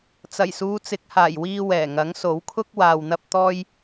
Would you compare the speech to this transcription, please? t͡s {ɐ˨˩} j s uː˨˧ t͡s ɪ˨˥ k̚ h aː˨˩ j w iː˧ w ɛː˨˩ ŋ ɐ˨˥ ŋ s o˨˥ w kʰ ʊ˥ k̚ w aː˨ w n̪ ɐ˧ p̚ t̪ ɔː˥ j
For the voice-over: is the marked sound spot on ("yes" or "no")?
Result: yes